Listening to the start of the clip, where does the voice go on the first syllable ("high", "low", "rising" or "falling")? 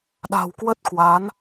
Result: low